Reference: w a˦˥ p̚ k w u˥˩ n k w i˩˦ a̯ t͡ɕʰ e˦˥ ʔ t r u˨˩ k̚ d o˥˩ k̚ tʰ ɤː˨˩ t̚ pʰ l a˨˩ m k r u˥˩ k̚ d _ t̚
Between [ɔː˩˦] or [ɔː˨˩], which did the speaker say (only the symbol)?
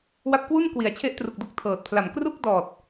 ɔː˨˩